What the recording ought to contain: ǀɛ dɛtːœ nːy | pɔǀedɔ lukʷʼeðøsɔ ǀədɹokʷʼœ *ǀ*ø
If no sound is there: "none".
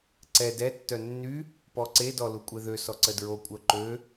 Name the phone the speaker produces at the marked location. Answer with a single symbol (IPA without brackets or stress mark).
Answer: ǃ